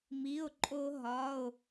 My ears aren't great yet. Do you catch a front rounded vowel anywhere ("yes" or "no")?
no